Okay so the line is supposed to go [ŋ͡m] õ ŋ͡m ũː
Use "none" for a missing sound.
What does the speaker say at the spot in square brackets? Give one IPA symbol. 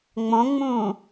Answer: ŋ͡m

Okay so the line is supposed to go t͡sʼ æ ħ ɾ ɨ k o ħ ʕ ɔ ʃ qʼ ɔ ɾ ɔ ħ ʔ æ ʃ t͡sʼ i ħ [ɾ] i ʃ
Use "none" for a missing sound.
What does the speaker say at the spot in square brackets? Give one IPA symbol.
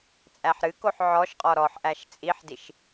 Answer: d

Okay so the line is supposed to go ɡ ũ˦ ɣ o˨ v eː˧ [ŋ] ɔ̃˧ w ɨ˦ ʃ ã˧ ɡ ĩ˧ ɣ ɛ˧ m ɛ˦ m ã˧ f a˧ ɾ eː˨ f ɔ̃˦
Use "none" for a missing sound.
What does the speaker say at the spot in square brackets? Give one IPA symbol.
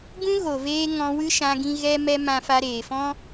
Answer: ŋ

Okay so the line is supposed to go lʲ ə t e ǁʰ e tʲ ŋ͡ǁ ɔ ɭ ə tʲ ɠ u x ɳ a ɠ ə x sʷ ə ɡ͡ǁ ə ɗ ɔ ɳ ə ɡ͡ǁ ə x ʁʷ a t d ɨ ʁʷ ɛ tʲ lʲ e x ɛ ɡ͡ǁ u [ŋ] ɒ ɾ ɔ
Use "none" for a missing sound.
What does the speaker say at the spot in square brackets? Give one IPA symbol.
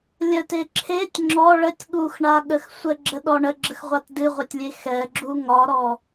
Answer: ŋ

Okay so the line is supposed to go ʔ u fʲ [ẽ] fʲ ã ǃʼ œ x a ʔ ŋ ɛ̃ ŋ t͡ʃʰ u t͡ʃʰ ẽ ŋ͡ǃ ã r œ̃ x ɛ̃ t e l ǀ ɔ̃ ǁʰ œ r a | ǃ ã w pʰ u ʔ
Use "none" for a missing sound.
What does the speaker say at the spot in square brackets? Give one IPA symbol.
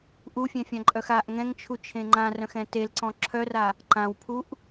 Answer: ɛ̃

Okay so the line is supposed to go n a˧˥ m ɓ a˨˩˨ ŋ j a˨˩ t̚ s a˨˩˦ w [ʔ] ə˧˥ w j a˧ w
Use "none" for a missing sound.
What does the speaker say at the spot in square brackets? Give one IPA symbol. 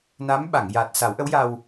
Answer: ʔ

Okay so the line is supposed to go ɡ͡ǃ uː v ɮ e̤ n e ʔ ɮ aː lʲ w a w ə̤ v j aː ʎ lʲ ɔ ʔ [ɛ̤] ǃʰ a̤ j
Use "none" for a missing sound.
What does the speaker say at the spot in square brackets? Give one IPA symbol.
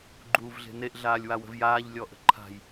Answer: ə̤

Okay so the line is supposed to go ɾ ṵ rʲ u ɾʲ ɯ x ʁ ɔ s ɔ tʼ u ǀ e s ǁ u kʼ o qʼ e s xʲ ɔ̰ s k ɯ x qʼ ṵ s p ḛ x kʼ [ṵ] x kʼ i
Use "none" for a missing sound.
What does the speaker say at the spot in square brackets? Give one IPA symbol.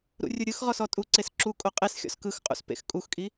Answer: u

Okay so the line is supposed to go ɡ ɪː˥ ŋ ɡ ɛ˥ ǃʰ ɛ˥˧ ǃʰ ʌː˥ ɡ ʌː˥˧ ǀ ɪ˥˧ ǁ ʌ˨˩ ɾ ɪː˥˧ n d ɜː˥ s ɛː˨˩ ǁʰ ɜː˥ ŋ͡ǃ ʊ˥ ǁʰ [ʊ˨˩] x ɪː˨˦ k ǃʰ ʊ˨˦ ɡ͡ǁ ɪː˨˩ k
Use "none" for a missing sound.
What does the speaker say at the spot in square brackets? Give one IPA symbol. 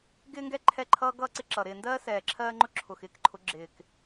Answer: ʊ˨˩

